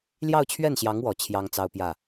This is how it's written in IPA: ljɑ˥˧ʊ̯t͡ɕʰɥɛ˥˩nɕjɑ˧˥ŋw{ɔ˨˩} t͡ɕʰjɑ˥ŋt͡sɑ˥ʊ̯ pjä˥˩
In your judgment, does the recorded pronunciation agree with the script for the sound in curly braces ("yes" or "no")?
yes